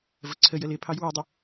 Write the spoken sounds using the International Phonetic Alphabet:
vəǀʰəjəl ɪpʰɑj wɪdˤə

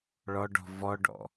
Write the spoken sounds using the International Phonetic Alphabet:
ɭɔɖɔ̤ vɔɖɔ̰

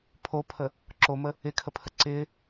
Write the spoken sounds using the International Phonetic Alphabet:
pʰopʰə | ǁomə | ɪkʰəpʰə ǀɪ

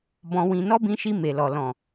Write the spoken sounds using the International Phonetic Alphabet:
bɔ̃˧wĩ˧ nɔ˦bĩ˧ʃi˧ me˨lɔ˨ lɔ̃˨

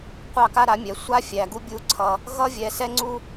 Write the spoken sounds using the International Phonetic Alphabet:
qʷɑ˦˨ka˦ ɾa˨˦mʲɛ˨˦ sʷa˦ fʲæ˧ɡu˦ bʲu˦ǀʰʌ˦ | ɣʌ˦vʲɛ˧sɛ˦ŋ͡ǀu˦

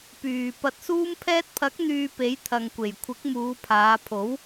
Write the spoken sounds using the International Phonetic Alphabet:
pyː˨ pɐ˨t̚suː˧mpʰɛː˧t̚pʰɐ˨˥k̚ n̪yː˧pe˨˥j t̪ʰɐ˨ŋkʷe˨˩jkʷʰɪ˨˥k̚ muː˨˧pʰaː˨˧pʰo˨˥w

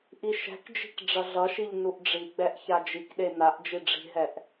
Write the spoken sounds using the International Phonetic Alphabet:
ʔiʃɛ̤kd͡ʒi̤k ɖ͡ʐʌɮʌʃiʎ nuʔɖ͡ʐiɡ͡bɛʔ çad͡ʒikɗe naʔ d͡ʒiɖ͡ʐi̤ɦɛʔ

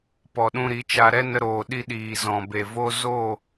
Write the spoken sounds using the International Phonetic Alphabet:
pɔ˨ɗũ˧ɾi˨˦t͡ʃa˧ ɾɛ˦ nə˧ɾoː˨ ɗi˧ ɗiː˨zɔ̃˨be˨ vo˧ zo˦˨

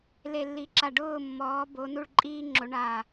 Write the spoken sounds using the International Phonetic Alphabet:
le˧˩lːi˨˦ǁa˧˩ ɖʊː˥˨mːɔː˨˦bo˨˦ nu˥˨ɭǃʼiː˥ŋ͡ǁo˨˦ ɳaː˧˩

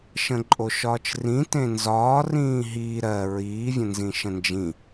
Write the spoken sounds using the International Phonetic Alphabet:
ʃə̃ǃʼoʃɒːt͡ʃrĩ tẽnzɒː rĩːɦiː ɾɜ ɹiː vʲə̃nzĩʃə̃nd͡ʒĩ

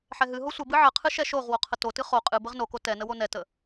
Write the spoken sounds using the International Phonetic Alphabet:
ħɛɦɨɦo sʷəbɨ ʕəqʰɨ ʃɛʃoʁwo qʰətotɨ χo qʼɨ bəʁnoko tɛnə wonɛtə

